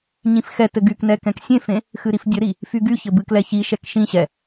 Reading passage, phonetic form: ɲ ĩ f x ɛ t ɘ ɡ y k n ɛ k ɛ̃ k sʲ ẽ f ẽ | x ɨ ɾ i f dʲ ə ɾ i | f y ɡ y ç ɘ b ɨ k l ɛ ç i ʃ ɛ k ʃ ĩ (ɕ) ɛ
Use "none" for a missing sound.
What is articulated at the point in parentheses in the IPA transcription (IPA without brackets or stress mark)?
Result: ɕ